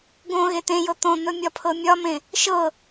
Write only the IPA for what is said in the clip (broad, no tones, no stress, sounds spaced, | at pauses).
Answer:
ɡ õ ɣ e t̪ ẽ j ɤ t̪ õ n̪ ɵ mʲ ɒ pʰ ɤ mʲ ɒ m ẽ | ʃ ɤ